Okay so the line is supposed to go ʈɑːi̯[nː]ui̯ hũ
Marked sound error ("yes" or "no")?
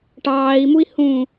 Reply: yes